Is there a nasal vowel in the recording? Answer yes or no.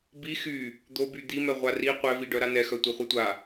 no